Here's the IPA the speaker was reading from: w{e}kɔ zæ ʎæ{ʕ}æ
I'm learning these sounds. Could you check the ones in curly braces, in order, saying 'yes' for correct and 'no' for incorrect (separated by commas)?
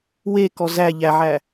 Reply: yes, yes